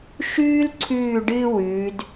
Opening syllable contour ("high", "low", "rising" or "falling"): high